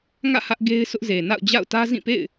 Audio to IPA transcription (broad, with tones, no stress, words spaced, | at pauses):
ŋä̰˦˨ hä˦ʔɡe˦ɪ̯sʰʊ˦ʔze˨ na̰˦˨ʊ̯d͡ʑa̰˦˨ʊ̯tä˦ zĩ˦˨pḛ˦˨ɪ̯